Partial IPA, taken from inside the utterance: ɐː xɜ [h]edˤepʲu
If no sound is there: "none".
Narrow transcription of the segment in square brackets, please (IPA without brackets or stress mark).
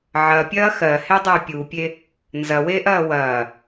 h